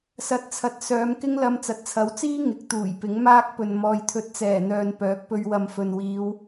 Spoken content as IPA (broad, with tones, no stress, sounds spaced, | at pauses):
s ɐ˨ t̚ t͡sʰ ɐ˨ t̚ s œː˨˧ m k ɪ˥ ŋ l ɐ˧ m t͡s ɐ˨˥ t̚ t͡sʰ ɐ˨˥ w t͡s iː˥ ŋ ɪ˨˥ k̚ t̪ uː˨˩ j p ɪ˨˥ ŋ m aː˥ k̚ p ɵ˨ n m ɔː˨ j t̪ʰ ɵ˨ t̚ t͡s ɛː˨˩ n̪ œː˨ n p œː˨˥ k̚ p ɵ˧ ɥ w ɐ˨ m f ɵ˨ n w iː˨˧ w